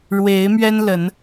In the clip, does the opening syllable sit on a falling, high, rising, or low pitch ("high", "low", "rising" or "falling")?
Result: rising